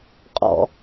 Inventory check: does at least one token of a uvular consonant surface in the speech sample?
yes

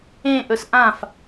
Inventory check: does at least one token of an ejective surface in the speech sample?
no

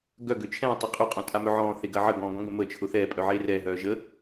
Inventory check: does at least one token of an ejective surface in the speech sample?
yes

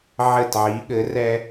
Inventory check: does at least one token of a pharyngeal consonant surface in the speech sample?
yes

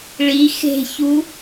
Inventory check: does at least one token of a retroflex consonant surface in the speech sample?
yes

